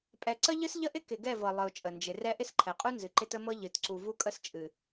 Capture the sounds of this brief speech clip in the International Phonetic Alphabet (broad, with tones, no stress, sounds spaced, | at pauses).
pʼ ɛ˨ ǀ ə˦ ʎ ɨ˦ s ʎ ə˦ ʔ ɪ˦ k ɪ˨ ɡ ɛ˦˨ v ɤ˨ lˠ ɨ˨ ʊ̯ t͡ʃʼ ə˨ n d͡ʒ ɪ˨ r ɛ˦ ʔ ɪ˦ s ǃʰ ɛ˨ qʼ u˦ n z ɨ˨ ǃ ɪ˦ t ə˦ m ɤ˦ ʎ ɨ˨ t ǀ u˨ v u˦ kʼ ə˦ s t͡ʃʼ ɨ˨